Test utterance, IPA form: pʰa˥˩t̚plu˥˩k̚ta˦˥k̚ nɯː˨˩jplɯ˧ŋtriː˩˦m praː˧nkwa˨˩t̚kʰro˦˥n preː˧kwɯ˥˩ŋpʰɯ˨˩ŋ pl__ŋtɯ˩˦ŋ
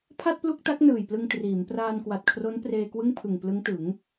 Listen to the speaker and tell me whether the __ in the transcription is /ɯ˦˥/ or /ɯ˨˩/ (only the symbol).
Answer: ɯ˦˥